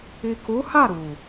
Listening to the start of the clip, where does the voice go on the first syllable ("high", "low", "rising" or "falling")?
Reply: low